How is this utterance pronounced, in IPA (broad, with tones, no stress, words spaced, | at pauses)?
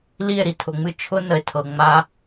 li˦˨e̯ɾi˨tʰʊ˨ŋ͡mɨ˦ t͡ʃʰʊ˦nə˨e̯tʰɤ˨ŋ͡ma˦